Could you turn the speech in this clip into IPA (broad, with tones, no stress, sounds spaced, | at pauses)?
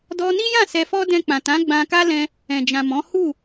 d ɔ˧ n i˦ j ã˦˨ s ɛ˧ f ɔ˦ d ɛ̃˧ k͡p ã˨ t ã˨˦ ɡ͡b ã˧ k a˦ l ɛ̃˧ | ɛ̃˨ d͡ʒ ã˨ m ɔ̃˨˦ h u˦˨